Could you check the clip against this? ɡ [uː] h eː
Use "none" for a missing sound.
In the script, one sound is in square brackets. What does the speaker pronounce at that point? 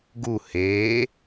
u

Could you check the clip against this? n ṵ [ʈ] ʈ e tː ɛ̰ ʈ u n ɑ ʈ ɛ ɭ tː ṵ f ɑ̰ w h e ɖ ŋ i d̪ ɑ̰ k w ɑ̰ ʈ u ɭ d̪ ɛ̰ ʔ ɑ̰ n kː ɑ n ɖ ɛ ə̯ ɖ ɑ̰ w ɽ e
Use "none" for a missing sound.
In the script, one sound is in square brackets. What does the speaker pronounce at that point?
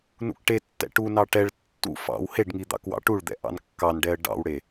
k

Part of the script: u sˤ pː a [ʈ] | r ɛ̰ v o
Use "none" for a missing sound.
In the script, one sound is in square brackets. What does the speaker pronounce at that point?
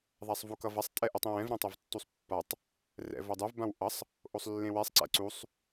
tˤ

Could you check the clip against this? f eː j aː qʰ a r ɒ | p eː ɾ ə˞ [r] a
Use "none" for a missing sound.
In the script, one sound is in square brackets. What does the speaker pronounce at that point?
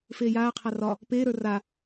r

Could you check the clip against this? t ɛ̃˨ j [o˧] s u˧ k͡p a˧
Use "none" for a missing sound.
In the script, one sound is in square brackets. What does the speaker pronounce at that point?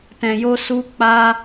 o˧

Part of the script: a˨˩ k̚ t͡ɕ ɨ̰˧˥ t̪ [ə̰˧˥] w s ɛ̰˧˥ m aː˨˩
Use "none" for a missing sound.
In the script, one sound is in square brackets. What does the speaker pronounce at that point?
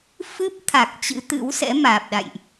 ɨ̰˧˥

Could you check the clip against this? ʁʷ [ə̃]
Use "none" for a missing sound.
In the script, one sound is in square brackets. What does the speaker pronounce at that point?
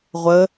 ə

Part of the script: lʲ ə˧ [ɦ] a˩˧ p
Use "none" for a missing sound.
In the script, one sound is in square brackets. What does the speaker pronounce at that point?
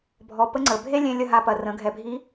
ɦ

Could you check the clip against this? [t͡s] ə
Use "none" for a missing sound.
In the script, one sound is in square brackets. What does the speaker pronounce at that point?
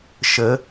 ʃ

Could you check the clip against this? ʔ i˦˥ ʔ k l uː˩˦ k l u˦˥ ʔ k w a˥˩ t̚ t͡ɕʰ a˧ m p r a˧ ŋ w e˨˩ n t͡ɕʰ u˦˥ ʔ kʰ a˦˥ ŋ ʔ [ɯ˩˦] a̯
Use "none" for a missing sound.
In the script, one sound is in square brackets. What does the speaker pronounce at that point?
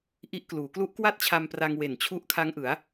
ɯ˩˦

